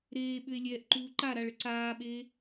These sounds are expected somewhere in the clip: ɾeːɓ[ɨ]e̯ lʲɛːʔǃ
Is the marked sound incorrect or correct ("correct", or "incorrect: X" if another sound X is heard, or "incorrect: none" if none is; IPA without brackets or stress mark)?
incorrect: ʏ